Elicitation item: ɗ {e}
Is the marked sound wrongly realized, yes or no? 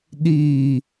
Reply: yes